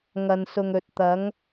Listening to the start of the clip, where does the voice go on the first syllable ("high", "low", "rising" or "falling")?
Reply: low